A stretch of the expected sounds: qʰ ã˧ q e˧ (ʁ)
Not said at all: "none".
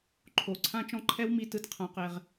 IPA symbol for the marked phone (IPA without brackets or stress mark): ʁ